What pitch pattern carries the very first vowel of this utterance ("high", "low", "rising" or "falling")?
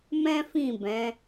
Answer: high